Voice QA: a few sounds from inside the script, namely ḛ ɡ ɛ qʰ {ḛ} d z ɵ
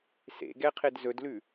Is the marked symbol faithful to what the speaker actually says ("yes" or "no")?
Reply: no